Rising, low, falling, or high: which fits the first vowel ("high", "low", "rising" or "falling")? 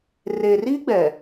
low